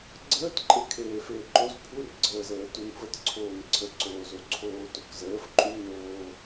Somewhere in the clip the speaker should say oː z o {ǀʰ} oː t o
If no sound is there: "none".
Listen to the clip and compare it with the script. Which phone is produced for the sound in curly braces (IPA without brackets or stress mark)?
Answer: ǀʰ